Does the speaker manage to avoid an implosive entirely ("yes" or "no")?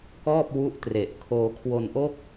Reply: yes